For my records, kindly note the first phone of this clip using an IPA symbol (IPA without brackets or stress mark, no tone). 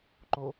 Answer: ǃ